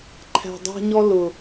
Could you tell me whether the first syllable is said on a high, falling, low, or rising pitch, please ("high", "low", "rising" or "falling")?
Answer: low